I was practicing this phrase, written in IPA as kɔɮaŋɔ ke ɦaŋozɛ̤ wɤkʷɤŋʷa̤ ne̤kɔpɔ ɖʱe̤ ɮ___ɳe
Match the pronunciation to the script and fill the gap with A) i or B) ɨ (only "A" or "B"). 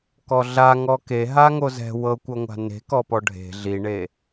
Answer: A